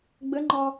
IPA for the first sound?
ɡ͡b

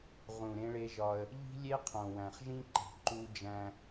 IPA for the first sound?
ʁ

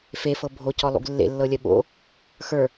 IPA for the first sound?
f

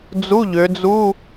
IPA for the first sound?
d͡z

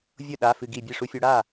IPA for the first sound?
vʲ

